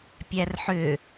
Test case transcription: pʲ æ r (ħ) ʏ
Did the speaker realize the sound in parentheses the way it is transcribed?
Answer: yes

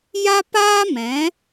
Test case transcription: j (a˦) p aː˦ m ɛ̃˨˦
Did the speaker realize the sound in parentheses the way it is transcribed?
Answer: yes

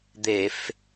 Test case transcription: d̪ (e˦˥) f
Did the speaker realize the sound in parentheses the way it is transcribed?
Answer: no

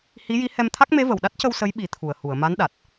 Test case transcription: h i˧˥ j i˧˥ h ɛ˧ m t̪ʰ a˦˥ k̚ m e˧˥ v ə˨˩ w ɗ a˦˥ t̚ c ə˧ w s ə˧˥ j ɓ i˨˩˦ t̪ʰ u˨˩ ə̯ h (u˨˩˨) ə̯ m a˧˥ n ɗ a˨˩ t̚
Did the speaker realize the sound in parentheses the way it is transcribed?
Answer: yes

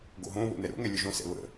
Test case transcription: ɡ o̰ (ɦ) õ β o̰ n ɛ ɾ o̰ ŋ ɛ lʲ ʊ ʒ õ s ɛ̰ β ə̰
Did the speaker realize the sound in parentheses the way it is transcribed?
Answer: yes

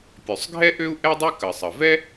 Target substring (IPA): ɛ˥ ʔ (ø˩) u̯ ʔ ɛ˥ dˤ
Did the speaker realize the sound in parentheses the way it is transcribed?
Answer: no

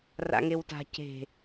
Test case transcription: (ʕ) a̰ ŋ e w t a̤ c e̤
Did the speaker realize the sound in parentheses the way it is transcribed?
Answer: no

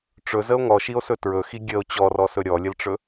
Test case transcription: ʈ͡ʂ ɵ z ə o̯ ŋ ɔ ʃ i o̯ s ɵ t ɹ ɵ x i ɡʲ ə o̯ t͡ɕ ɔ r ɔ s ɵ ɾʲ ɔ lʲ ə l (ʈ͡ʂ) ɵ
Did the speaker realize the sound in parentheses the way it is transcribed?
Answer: yes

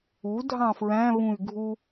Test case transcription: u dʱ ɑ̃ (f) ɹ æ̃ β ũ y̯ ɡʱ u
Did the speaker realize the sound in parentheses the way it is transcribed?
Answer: yes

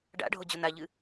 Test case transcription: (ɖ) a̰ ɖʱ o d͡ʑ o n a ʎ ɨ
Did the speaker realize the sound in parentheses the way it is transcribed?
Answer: yes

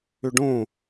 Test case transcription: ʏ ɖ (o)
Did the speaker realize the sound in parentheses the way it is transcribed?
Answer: no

